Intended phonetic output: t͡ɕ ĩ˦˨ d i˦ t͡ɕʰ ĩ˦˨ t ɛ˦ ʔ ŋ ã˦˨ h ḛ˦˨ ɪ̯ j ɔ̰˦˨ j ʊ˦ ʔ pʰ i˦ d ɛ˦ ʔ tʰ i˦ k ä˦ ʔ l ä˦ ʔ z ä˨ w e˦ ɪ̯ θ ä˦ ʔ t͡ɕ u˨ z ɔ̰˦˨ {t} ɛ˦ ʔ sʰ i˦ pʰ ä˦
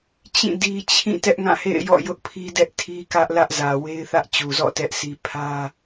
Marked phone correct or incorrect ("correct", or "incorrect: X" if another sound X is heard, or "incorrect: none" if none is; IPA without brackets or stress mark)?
correct